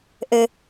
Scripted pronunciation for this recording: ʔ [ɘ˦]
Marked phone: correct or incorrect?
correct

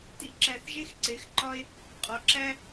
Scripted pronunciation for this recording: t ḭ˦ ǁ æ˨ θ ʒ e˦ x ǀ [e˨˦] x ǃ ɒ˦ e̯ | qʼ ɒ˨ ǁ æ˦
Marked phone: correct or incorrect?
correct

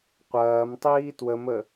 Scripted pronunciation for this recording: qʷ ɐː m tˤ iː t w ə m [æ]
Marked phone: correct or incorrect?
incorrect: ə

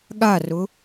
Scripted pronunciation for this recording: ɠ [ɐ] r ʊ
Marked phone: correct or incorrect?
incorrect: a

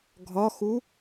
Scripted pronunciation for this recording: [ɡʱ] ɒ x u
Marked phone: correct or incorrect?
correct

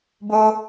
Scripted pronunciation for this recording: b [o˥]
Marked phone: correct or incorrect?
incorrect: o˨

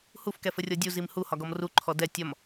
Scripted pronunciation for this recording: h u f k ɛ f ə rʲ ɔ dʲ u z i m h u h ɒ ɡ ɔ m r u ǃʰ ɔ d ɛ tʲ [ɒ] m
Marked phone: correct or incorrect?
correct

